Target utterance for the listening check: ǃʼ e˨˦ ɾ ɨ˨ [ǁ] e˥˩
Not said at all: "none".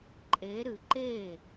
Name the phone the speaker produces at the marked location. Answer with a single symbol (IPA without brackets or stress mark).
ǃ